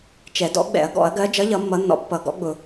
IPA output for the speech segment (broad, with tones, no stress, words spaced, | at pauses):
t͡ʃɛ˨˩˦dɔ̰˨˥ɡ͡bɛ̰˨˩˦ɐ̯ ɡɔ̰˨˩˦ɐ̯ɡɜ˨˥ d͡ʒʌ˨˥ʎʌ˨˩˦ mːʌ˨˥nːɔ̰˨˥ pːʌ˨˩˦ɡɔ̰˨˥ɡ͡bʊ˨˩˦